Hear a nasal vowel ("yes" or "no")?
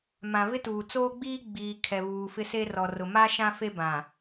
yes